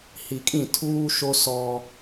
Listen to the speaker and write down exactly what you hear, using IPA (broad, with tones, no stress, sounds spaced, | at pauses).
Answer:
h i˨ kʼ ĩ˦˨ tʰ uː˦ ʃ o˦ s ɔ˦